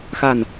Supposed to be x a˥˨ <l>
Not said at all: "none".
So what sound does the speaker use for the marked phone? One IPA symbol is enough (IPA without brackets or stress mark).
n